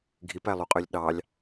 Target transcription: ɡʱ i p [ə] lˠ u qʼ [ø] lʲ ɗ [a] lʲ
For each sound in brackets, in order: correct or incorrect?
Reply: incorrect: æ, correct, incorrect: ɑ

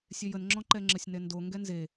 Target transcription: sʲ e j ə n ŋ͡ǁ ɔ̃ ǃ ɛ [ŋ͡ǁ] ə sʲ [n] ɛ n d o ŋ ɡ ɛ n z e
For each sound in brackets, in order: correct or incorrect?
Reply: correct, correct

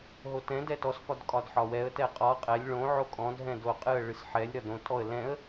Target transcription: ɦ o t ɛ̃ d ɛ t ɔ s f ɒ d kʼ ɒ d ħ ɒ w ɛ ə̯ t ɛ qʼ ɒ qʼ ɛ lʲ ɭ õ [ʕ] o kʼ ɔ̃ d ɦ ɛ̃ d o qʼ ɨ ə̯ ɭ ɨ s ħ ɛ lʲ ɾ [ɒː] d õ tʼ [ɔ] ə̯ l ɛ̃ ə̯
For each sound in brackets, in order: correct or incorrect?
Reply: correct, incorrect: ɒ, correct

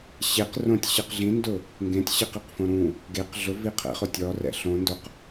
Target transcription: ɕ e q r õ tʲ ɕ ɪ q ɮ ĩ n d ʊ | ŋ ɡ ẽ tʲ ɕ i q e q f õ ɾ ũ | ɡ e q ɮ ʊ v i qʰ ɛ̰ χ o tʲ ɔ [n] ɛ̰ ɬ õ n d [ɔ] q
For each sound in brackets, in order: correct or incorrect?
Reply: incorrect: r, incorrect: o

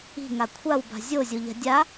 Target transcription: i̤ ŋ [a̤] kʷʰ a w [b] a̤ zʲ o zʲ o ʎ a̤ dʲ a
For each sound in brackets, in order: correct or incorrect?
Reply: incorrect: a, correct

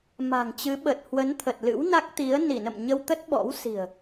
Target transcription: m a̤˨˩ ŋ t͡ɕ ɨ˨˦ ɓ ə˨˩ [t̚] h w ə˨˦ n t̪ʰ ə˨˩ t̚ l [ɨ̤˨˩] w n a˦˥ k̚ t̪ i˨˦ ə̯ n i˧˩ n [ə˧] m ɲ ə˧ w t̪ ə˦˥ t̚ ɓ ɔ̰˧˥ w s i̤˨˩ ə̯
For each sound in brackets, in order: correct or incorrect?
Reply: correct, incorrect: ɨ̰˧˥, incorrect: ə̰˧˨

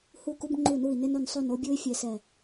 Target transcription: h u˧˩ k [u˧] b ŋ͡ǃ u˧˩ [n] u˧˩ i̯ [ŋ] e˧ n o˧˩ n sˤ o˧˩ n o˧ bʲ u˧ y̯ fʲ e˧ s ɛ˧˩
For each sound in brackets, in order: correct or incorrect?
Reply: correct, correct, incorrect: n

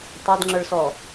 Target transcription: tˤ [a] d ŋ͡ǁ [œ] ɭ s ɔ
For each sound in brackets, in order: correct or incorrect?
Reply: correct, correct

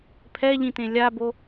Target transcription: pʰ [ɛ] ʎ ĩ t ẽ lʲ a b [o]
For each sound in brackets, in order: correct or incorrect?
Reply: correct, correct

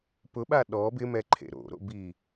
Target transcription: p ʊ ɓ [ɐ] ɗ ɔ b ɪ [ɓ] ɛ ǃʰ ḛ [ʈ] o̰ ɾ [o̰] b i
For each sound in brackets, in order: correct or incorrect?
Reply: incorrect: a, incorrect: m, incorrect: ɾ, correct

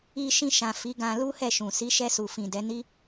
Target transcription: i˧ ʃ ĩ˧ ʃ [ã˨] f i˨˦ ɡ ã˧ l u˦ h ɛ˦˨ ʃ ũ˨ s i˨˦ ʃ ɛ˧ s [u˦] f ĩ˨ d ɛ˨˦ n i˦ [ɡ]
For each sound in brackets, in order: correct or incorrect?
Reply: correct, incorrect: u˨, incorrect: none

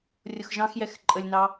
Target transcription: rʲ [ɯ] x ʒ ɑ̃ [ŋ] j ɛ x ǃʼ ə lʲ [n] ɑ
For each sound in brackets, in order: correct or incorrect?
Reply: incorrect: ʊ, incorrect: x, correct

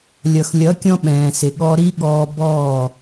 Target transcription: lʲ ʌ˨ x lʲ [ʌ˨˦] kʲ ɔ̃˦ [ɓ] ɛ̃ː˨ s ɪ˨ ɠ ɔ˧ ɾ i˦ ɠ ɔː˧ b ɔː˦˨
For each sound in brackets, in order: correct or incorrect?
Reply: correct, correct

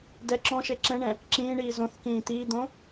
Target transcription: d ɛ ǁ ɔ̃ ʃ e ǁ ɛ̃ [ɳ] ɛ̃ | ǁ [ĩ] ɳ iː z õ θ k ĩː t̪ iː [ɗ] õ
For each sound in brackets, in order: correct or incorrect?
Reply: correct, incorrect: ĩː, incorrect: d̪

